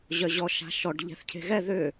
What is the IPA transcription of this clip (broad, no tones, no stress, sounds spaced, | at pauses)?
ʑ œ ʑ ɔ ʃ a̤ ʃ ɔ ɖ ʎ ɛ̤ θ cʰ e̤ ɣ ɛ ð ʏ